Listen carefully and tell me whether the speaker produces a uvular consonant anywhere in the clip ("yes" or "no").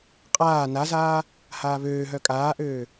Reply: yes